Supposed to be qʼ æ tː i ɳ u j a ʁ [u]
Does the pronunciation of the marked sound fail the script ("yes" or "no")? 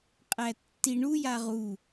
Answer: no